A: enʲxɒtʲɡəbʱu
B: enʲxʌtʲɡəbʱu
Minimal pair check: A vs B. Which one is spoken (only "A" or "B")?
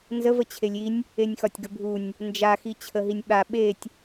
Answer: A